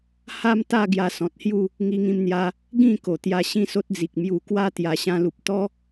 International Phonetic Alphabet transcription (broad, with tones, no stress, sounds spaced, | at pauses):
h a˦ m t̪ a˥˧ ɡ j a˧ s ɔ̃˨ t̚ h j u˥˧ | ŋ i˧ ŋ ĩ˧ m n̪ j a˧ | ɡ ĩ˥˧ k o˨˩ t̪ j a˧ ɕ ĩ˦ s o˦ t̚ d͡z i˨ k̚ m j u˨˩ k w a˦ t̪ j a˨˩ ɕ ã˧ l u˨ p̚ t̪ ɔ˦